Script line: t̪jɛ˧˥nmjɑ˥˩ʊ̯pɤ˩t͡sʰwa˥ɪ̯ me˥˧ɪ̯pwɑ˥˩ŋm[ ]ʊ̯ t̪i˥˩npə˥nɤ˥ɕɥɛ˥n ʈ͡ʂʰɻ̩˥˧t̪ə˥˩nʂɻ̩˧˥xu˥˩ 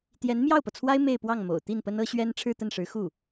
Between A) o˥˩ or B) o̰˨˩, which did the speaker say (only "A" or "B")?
B